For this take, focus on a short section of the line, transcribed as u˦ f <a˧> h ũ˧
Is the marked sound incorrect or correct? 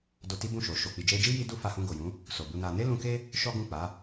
correct